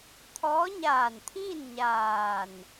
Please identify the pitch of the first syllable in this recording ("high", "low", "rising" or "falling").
rising